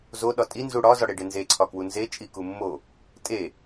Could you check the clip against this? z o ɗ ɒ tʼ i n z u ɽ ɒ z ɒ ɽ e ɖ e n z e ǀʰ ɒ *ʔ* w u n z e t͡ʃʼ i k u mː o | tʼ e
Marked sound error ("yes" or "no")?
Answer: yes